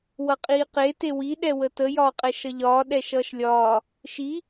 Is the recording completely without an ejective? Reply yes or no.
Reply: no